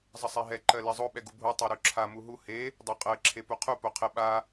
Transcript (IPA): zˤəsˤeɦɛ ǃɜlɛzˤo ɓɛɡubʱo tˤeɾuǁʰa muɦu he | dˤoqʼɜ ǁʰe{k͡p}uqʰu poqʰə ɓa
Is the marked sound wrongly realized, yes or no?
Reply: yes